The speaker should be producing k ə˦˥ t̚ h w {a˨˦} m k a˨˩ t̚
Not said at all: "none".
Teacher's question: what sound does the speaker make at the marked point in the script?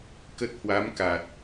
a˨˦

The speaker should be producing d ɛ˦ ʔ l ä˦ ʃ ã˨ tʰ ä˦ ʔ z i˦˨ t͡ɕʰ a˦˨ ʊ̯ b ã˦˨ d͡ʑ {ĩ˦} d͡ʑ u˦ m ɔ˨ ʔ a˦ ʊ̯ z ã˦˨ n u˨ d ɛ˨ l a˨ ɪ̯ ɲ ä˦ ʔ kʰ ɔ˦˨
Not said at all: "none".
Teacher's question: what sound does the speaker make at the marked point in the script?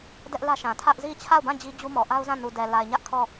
i˦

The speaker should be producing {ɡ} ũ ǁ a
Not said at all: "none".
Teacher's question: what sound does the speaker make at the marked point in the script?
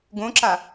ɡ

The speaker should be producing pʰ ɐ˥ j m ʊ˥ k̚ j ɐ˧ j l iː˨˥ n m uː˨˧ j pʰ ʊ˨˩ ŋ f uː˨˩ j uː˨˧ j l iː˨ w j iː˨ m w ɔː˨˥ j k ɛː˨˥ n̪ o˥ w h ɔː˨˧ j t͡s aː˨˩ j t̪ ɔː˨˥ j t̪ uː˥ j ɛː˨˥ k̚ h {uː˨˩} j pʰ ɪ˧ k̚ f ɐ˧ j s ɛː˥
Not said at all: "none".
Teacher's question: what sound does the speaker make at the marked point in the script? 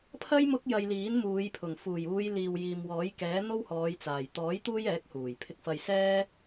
uː˨˩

